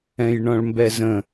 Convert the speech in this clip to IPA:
ɛ̃ j ɳ ɔ̃ ɭ m b ɛ z ə̃

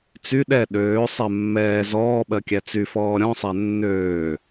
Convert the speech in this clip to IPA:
t͡s y ɗ ɛ ɗ øː sˤ ɛ mː ɛː z ɔː ɓ ɜ kʲ æ t͡s y f ɔː ɾʲ ɔ̃ sˤ æ nː øː

